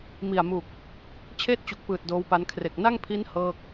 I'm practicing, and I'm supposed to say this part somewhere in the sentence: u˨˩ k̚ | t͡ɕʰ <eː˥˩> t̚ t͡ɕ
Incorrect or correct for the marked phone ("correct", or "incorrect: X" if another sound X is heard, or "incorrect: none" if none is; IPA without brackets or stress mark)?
correct